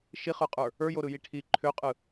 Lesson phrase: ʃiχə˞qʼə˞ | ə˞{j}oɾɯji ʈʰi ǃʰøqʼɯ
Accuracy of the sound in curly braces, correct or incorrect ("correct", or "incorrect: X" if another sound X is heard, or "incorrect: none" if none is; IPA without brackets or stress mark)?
correct